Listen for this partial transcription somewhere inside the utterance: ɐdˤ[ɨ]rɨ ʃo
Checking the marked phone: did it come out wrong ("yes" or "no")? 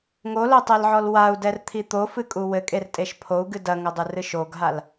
no